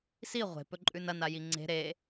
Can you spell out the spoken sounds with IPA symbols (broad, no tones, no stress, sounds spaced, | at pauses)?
s i ʁʷ e̤ p ɵ ǃʼ ʉ n ɐ n a j i ŋ͡ǀ e̤ ɾ e